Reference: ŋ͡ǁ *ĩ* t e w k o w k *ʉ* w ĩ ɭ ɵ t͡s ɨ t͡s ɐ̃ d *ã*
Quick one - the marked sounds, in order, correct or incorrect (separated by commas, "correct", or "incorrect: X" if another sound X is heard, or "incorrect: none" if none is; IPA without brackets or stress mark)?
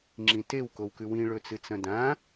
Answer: correct, correct, correct